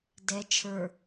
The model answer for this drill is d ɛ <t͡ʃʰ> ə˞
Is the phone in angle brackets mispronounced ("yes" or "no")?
no